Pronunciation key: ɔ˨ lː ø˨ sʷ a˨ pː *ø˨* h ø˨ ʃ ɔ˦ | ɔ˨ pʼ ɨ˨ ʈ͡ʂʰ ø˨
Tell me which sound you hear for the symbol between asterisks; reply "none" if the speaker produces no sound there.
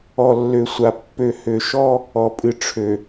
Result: ø˨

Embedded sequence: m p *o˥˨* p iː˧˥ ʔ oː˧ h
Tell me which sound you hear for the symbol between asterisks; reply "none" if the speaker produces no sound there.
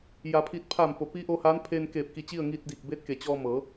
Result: o˩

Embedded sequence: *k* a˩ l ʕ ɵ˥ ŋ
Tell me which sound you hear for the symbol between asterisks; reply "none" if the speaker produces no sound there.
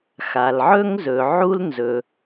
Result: x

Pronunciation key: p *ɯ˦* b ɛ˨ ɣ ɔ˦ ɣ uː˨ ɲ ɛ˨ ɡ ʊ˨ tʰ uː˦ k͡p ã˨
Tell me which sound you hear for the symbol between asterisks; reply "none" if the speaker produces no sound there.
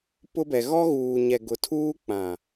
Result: ʊ˦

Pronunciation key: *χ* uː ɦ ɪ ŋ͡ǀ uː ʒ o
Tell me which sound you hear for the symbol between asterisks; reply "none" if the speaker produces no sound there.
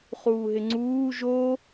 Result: χ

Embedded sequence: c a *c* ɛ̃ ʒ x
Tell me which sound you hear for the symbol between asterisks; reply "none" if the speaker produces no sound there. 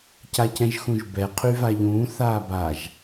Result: c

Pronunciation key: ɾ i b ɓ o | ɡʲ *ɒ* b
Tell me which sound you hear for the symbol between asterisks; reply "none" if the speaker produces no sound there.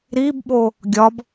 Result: ɒ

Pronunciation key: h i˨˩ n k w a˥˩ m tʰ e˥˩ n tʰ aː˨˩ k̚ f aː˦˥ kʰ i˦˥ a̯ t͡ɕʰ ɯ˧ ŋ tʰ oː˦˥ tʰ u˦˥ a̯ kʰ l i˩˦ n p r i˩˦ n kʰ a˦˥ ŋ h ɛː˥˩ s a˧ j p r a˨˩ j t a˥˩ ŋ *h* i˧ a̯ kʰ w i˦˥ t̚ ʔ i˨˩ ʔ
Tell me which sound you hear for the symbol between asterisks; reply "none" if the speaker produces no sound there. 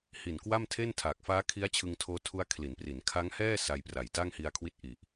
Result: h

